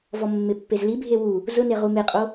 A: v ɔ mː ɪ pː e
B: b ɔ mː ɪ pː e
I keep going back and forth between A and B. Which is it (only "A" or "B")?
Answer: A